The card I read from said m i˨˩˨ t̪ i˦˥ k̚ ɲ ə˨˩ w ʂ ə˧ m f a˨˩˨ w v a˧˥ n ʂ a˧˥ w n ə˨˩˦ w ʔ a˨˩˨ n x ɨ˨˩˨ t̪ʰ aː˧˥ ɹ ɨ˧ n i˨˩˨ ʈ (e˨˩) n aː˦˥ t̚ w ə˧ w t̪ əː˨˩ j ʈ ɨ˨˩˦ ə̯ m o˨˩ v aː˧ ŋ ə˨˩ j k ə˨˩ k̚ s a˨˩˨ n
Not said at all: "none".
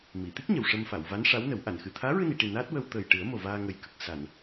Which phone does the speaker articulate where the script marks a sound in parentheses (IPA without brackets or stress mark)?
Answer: i˨˩